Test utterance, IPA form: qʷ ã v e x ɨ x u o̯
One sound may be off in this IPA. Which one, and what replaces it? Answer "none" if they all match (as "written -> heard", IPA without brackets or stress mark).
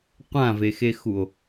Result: ɨ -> e